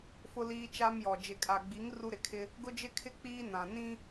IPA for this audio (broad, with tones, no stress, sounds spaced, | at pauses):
f ʊ˦ l iː˦ t͡ʃ a˦ m j ɔ˨ d͡ʒ ɪ˨ kʼ a˨ ɡ͡b i˨˦ ŋ r u˦ ɾ ɪ˨ kʰ ɪ˦ | ɡ ʊ˦ d͡ʒ ɪ˦ kʰ ɪ˦ k͡p iː˦ n ã˨ n ĩ˦